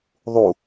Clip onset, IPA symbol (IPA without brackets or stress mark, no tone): ðˤ